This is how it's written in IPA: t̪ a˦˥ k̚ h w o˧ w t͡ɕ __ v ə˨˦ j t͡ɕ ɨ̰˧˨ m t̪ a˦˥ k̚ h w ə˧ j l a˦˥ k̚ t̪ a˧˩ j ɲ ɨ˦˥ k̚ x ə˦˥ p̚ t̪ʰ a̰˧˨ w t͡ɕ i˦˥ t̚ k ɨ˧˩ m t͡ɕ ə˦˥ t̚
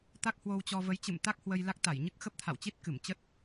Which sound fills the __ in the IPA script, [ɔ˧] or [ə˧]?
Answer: ɔ˧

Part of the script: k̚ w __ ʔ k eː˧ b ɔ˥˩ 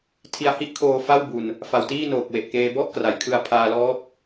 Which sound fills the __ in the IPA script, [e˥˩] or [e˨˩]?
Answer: e˨˩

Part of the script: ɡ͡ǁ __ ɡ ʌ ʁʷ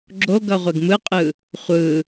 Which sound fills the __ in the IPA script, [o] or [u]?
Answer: o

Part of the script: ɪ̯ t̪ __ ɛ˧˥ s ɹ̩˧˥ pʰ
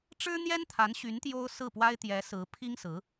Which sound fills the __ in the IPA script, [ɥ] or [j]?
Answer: j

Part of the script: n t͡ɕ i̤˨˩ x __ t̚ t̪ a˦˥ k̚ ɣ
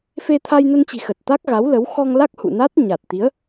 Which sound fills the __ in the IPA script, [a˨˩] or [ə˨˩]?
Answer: ə˨˩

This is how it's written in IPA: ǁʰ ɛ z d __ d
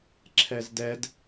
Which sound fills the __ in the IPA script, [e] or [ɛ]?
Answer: ɛ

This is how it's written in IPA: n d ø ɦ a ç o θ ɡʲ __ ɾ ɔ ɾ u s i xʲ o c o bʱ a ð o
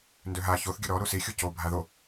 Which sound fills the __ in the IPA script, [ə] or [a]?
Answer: ə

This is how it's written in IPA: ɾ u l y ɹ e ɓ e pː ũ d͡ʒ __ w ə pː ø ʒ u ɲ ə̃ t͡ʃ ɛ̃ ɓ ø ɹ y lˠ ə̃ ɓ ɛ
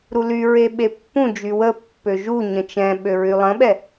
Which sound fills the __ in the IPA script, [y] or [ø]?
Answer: y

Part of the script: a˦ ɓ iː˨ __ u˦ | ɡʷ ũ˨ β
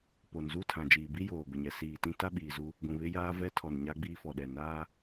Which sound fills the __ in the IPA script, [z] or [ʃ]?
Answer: z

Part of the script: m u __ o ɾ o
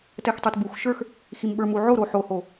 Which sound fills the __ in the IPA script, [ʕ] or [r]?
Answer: ʕ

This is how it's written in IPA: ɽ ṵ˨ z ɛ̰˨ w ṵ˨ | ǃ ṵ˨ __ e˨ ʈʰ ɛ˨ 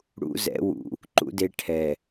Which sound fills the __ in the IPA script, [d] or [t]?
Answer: d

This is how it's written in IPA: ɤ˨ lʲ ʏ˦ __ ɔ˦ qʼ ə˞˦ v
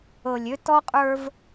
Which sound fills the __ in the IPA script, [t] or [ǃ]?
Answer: t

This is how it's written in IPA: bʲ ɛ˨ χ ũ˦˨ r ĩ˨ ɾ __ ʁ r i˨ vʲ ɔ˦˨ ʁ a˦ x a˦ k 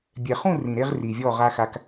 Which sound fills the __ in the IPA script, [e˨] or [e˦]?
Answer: e˦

